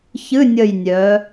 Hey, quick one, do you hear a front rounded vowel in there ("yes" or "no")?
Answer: yes